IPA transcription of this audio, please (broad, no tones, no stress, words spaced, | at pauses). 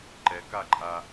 ǃɛkaǃʼa